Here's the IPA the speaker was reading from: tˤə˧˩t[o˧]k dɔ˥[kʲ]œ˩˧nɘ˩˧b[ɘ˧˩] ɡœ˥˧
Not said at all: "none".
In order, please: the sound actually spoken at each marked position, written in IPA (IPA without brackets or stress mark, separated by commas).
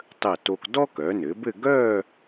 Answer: o˧, k, ɘ˥˧